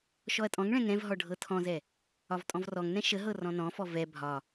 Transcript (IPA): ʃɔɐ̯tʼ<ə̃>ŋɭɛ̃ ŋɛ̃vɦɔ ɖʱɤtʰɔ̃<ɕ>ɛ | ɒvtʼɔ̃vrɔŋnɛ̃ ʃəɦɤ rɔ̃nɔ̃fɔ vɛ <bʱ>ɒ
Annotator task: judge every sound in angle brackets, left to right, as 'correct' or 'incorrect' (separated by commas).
incorrect, incorrect, correct